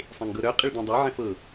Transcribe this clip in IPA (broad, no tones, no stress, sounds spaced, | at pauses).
sˤ ẽ ŋ ɡ ɤ ɾ œ qʼ ɪ ɭ d ẽ dˤ œ ʕ ɛ̃ f ɤ